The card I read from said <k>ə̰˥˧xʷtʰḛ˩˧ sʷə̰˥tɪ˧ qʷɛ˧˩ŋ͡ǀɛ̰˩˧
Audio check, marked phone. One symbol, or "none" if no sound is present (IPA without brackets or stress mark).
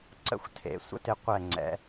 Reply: ǀ